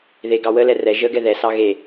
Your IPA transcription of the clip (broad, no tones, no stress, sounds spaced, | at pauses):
ð e ɡ ɑ w ə l ɛ r ɛ ʒ ə ɡ ɛ ð ɛ s ɑ ɣ e